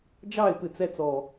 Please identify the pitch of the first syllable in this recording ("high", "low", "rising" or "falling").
falling